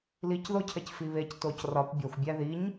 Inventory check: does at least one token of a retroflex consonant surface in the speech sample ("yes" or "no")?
no